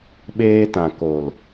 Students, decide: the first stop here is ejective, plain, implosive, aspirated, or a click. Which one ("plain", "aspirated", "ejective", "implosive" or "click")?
implosive